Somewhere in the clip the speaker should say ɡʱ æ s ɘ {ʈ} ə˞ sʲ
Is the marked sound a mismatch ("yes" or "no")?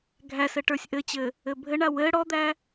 no